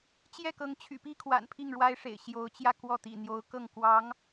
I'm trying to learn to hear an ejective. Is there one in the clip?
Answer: no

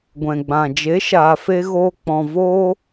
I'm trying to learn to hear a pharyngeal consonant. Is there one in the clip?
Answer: no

